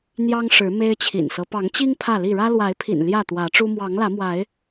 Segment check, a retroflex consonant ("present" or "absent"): present